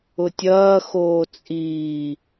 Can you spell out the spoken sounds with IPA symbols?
ʊ tʲ ɐː x oː t͡sʼ iː

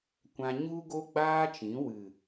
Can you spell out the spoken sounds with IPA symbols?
kʷ ã˧ ɲ u˦ ɡ o˦ ɡ͡b aː˦ t͡ʃ ĩ˨˦ w ɨ˨

